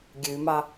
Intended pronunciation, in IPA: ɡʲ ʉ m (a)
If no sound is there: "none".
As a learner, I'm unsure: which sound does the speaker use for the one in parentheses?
ɑ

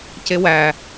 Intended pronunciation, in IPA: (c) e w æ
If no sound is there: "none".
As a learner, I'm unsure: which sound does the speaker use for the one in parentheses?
c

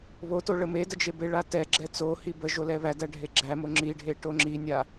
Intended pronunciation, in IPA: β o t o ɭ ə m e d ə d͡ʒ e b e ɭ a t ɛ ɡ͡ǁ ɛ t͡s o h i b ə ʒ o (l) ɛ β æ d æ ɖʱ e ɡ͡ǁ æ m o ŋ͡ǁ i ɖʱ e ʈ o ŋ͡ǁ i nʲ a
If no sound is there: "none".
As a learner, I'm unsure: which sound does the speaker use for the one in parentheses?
l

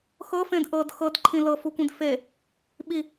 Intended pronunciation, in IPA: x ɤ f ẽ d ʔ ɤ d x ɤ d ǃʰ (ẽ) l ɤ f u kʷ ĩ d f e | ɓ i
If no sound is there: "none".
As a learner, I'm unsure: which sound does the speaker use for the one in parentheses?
ĩ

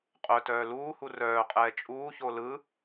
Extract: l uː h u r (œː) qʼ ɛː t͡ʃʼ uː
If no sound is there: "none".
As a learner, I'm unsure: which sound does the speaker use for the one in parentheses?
œː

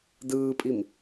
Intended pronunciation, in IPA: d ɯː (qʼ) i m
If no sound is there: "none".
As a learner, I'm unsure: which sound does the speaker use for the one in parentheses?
pʼ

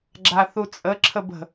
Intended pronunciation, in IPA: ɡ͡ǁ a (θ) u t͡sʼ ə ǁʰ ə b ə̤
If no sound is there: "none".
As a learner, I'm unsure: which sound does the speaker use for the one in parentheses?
θ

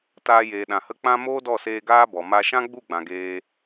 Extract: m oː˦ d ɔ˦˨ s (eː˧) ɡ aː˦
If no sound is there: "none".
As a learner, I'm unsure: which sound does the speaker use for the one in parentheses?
eː˧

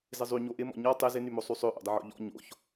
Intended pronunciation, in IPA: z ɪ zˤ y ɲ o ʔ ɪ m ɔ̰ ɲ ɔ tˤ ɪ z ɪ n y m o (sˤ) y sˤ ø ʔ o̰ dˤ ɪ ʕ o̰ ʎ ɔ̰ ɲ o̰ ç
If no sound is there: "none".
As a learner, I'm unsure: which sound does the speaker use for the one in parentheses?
sˤ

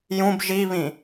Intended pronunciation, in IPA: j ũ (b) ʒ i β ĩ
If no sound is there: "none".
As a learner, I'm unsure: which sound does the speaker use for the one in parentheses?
b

